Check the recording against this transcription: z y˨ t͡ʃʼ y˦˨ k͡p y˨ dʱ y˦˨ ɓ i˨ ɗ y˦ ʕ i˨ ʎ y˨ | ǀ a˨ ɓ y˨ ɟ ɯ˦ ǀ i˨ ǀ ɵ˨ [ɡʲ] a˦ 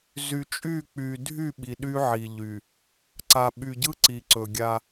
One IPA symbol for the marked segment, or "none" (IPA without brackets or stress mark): ɡʲ